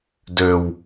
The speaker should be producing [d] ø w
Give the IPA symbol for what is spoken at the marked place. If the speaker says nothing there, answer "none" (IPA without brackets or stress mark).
d